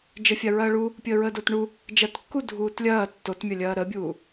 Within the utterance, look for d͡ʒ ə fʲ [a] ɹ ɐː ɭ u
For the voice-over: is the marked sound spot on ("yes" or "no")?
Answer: yes